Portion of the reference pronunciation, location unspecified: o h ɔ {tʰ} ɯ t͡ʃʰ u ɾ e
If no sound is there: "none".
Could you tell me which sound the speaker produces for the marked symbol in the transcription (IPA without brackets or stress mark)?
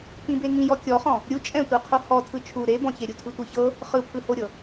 tʰ